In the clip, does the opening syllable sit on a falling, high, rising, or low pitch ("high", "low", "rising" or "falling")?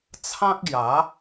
high